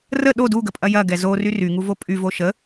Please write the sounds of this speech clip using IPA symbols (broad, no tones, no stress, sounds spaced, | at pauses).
r ə ɗ o d u ɡ ə pʼ ɐ j ɐ ɡ ɛ z o r y r y ŋ u v o pʼ y v o ʃ ə